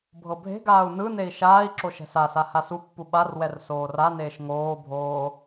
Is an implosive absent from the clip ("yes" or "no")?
no